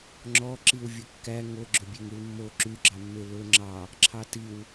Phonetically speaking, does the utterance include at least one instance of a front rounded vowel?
yes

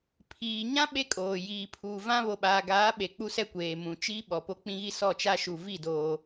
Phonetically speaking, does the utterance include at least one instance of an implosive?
yes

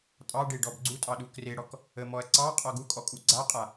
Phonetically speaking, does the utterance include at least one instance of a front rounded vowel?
no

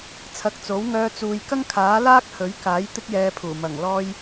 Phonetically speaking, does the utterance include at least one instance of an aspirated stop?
yes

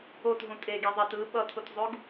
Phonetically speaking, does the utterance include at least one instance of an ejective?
yes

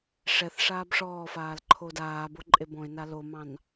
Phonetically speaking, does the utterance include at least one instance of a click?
yes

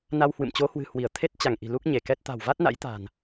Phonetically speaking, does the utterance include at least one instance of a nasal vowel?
no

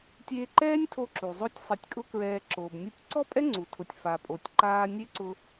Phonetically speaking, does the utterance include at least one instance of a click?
yes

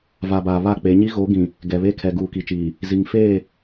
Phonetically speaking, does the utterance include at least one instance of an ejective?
no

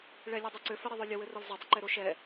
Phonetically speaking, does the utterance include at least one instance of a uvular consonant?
no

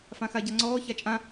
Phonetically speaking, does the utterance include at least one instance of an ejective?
yes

